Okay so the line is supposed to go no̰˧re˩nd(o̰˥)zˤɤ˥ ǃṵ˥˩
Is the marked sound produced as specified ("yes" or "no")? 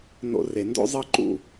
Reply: yes